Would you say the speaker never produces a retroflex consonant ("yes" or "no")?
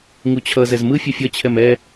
yes